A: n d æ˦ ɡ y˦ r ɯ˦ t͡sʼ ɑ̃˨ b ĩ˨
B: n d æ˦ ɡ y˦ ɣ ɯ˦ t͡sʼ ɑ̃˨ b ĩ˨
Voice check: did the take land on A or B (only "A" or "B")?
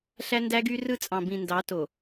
A